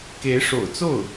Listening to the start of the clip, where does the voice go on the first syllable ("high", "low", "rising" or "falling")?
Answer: rising